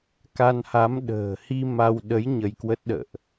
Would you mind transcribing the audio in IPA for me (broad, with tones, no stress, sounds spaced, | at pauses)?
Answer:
k a˧ n h a˨˦ m ɗ ə̤ː˨˩ h i˧ m a˧ w ɗ ə˨˦ j ɲ ə˧ j k w ə˦˥ t̚ ɗ ə̰ː˧˨ ʔ